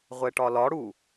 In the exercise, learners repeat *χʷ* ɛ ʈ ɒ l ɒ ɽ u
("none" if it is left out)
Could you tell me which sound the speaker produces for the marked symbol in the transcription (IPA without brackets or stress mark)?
ʁʷ